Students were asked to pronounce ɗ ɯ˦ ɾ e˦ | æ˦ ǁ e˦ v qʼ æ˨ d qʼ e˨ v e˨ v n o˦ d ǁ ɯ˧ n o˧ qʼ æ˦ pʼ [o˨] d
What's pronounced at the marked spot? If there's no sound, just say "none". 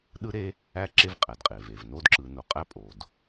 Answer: o˨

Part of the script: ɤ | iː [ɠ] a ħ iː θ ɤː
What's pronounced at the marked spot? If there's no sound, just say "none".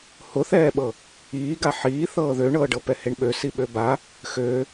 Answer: ɡ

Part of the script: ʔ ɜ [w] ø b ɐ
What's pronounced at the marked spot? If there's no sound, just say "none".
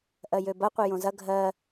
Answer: j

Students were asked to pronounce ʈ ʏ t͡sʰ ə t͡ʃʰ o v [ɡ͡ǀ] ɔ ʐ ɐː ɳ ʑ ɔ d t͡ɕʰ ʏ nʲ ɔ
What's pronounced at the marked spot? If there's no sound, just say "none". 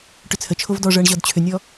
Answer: d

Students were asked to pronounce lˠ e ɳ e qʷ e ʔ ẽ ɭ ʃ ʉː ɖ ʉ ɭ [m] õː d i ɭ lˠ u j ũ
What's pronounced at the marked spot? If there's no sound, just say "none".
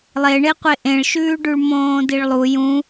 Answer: m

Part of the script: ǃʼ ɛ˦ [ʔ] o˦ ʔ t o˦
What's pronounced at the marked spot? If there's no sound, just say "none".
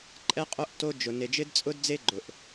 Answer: qʼ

